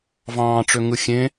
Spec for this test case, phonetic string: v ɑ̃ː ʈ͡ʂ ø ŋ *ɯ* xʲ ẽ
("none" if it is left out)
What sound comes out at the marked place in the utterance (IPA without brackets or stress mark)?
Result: ɯ